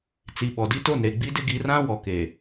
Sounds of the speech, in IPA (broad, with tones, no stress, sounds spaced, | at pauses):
t͡s i˨ ɓ ɔ˨ d i˦ t o˦˨ n ɾ e˨ ɡ͡b i˦ d ɪ˦ ɡ i˨˦ r ã˦ w ɔ˨ k e˨